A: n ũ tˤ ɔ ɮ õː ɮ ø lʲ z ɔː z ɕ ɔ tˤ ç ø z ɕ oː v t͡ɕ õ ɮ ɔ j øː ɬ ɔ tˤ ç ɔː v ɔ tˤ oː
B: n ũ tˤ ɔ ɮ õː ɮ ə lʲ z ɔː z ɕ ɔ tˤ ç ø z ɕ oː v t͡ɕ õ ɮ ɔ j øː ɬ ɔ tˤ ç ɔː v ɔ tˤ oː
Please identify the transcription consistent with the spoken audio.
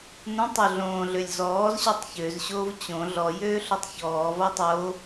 A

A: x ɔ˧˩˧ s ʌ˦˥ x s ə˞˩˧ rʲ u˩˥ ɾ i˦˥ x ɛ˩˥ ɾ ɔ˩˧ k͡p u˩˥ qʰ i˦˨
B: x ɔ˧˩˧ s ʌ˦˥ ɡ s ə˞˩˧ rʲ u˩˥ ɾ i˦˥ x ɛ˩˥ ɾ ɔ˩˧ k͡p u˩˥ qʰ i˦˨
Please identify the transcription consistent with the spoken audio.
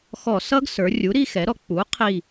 B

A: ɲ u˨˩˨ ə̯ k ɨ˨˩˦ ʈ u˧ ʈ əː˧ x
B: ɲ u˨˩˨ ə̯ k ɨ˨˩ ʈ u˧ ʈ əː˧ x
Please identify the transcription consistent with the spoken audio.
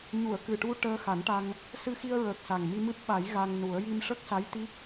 B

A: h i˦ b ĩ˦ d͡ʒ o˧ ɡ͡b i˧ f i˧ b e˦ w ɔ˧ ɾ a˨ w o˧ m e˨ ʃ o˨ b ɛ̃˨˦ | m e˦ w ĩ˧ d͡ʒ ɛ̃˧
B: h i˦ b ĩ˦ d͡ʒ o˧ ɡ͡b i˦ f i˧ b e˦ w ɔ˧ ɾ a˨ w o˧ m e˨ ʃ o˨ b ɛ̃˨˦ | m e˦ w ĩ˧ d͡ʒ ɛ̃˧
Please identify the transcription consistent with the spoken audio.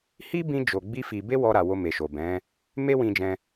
B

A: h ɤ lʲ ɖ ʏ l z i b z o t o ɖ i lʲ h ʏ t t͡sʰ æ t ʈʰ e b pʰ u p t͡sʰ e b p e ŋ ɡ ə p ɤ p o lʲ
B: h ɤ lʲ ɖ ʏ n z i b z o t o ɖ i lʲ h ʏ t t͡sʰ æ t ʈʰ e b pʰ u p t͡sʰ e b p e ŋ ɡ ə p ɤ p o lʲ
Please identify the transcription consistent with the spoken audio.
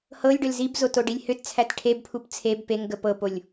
A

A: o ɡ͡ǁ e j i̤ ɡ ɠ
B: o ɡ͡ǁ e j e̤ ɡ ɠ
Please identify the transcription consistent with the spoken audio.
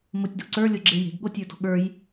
B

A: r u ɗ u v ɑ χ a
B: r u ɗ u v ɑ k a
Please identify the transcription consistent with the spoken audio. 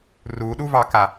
B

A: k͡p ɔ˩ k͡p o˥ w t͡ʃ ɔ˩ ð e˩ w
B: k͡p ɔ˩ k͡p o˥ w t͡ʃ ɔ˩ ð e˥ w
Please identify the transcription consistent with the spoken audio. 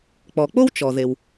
A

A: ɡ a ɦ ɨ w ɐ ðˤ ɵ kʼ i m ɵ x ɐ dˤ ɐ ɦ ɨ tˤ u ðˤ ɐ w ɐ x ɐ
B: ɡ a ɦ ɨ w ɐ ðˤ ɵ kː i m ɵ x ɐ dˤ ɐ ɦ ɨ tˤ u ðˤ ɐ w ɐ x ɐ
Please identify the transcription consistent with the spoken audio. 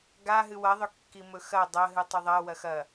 B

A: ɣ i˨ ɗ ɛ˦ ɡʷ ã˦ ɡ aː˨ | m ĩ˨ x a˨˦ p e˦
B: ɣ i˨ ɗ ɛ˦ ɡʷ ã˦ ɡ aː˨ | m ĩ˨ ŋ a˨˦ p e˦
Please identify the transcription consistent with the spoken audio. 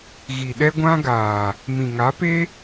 B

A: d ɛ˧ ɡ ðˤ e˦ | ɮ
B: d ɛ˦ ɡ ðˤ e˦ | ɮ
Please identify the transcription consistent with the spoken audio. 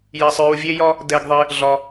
A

